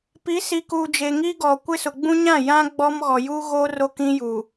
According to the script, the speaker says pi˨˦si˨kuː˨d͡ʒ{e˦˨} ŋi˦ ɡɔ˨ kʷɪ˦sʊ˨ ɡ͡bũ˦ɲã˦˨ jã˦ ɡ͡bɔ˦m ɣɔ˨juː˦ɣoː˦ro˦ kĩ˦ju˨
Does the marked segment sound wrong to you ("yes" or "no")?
yes